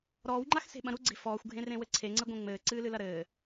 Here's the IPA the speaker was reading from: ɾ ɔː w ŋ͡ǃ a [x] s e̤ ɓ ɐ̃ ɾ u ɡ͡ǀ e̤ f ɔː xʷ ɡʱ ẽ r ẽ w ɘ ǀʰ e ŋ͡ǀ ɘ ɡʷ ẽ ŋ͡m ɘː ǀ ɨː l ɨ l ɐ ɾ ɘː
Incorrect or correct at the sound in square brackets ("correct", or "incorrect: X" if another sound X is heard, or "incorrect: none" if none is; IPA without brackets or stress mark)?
correct